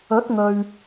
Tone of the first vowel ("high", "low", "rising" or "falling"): rising